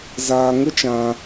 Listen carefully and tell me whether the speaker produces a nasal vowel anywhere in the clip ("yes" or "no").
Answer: yes